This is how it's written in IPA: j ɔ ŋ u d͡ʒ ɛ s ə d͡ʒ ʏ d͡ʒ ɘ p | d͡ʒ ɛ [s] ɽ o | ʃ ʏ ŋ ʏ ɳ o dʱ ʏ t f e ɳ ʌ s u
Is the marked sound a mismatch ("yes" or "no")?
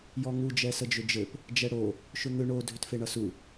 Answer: yes